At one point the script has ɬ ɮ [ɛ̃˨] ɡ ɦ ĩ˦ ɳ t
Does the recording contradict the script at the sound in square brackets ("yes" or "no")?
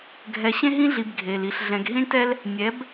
no